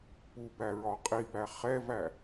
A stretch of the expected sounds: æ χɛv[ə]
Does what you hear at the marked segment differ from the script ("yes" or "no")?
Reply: yes